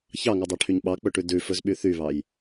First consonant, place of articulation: palatal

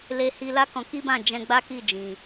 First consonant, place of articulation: alveolar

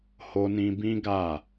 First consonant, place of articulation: glottal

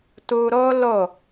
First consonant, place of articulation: alveolar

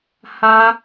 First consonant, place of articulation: glottal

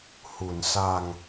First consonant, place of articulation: glottal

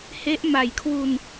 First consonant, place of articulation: glottal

